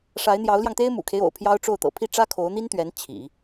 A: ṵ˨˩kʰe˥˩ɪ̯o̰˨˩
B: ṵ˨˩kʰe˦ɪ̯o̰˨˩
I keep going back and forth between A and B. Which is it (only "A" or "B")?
B